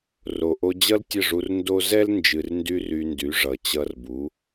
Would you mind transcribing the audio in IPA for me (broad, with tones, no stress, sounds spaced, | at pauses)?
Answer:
r o˨ ʔ o˧ d͡ʑ ʌ˦ l tʲ ə˦˨ ʐ u˧ r n d o˦ z ɛ˦ l n d͡ʒ ɨ˨ r n d y˧ r y˧ n d y˨˦ ʐ ʌ˨ t͡ɕ ʌ˧ r b u˨˦